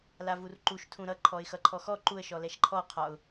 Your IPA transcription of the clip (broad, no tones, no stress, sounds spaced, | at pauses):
l a v u r ǃ u ʃ tʰ ũ ɾ ʌ ǃʰ ɔ ɪ̯ x ʌ ǃʰ ɔ x ɔ ǃ u ə̯ ʃ ɔ l ɛ ʃ ǃʰ ɔ qʰ ɒ ʊ̯